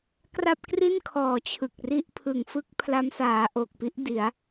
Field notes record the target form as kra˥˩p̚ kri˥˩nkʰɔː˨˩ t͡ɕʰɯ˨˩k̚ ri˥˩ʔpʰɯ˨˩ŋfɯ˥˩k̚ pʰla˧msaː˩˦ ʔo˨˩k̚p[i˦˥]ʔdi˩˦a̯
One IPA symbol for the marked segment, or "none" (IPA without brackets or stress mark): i˦˥